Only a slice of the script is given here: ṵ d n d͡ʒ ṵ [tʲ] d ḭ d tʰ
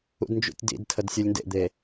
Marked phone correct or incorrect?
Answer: correct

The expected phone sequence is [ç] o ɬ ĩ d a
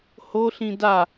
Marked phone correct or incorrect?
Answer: incorrect: h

